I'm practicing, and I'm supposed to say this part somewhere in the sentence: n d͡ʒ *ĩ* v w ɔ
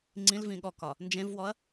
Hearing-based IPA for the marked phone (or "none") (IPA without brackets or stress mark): ẽ